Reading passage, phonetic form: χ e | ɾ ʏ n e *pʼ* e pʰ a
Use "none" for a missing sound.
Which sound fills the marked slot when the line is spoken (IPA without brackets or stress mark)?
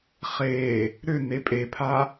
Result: pʼ